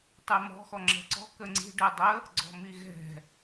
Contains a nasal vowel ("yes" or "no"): no